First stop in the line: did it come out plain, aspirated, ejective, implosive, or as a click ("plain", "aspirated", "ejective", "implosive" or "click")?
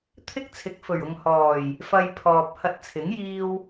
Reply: aspirated